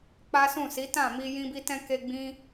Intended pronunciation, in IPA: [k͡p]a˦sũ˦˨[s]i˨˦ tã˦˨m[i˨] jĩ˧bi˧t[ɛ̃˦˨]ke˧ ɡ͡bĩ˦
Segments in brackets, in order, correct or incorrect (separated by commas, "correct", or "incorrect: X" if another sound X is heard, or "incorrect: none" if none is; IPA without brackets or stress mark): correct, correct, incorrect: i˧, incorrect: ɛ̃˧